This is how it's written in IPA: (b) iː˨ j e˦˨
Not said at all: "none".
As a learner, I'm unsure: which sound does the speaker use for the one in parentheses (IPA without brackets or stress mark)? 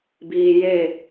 b